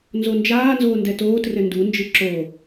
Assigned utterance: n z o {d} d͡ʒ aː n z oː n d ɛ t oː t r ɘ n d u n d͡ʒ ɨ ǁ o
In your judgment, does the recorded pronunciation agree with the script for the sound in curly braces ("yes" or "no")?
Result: no